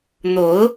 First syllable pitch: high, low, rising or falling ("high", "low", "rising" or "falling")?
rising